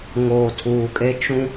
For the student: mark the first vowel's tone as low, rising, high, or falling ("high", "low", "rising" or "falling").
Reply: low